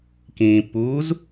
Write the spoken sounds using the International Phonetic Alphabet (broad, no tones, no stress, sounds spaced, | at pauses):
k ĩː pː uː z